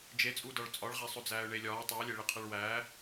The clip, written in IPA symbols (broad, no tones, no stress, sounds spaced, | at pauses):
d͡ʒ e t͡sʼ u d ɒ ɭ t͡sʼ ɒ ɭ ʁ æ sˤ o d͡z æː ʊ̯ ɳ e lʲ ɒː tˤ i ʊ̯ lʲ e ɭ i qʰ e ɭ w æː